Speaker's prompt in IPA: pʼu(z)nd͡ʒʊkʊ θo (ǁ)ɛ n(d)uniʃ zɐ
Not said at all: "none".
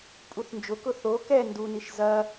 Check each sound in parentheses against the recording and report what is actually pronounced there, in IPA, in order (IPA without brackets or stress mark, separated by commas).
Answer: θ, k, d